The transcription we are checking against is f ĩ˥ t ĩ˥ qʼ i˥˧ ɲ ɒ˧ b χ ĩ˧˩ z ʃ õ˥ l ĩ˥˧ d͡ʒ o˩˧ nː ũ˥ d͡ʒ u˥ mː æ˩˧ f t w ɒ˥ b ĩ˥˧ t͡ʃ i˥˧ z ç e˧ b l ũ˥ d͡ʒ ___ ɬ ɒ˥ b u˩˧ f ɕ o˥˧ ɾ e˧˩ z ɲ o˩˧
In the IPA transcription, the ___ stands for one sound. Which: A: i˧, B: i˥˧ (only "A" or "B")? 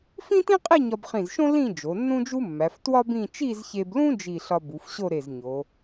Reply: B